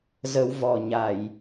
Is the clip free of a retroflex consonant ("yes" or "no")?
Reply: yes